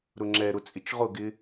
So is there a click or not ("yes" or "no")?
yes